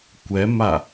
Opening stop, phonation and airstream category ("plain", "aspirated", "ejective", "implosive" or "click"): plain